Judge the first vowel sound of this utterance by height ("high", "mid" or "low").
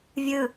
high